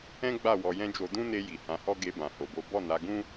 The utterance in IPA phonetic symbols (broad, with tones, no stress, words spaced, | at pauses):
ɛ̃˦ɡ͡ba˦˨ wɔ˧jɛ̃˦ d͡ʒo˧ dũ˦ne˧ ji˨hã˨˦hɔ˦ ɡe˧bã˨ ho˨bo˨˦ bɔ˦˨na˨˦ɡũ˦